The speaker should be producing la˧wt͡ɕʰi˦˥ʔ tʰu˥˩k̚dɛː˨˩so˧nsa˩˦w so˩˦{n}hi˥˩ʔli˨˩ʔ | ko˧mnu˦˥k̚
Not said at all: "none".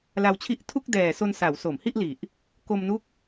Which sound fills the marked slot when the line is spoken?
m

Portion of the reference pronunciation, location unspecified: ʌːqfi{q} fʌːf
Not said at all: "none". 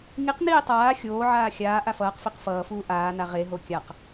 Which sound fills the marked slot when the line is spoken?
q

